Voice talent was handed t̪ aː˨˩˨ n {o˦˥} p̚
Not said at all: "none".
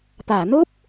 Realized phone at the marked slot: o˦˥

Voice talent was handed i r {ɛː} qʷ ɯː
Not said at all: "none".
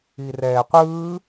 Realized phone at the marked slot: ɛː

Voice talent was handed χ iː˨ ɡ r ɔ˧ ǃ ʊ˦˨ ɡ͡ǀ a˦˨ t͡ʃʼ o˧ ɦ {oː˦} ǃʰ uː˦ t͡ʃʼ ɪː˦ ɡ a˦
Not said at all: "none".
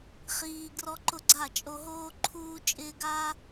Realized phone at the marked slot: oː˦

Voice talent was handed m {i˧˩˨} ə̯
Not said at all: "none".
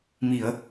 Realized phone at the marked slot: i˧˩˨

